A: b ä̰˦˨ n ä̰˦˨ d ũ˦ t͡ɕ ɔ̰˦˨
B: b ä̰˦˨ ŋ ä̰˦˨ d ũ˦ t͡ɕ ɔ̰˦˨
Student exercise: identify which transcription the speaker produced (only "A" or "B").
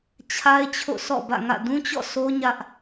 B